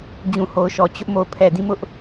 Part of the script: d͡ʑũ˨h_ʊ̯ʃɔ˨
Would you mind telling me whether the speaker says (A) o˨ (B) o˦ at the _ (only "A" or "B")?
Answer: A